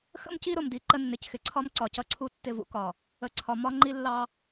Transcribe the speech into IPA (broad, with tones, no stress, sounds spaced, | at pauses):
x ə̰˦ m c i˦ ɾ ʊ˨ m d i˨ ǃ ə˦ nː ɪ˨ c x ɪ˨ ǀʰ ɒ˦ m ǀ ɒ˨ c ʌ˦ ǀʰ u˦ tː ɪ˦˨ v ṵ˦ k ɒ˨ | ə˨ ǀʰ ɒ˨ m ɒ˦ ŋ͡ǃ i˦ lː ɑ˦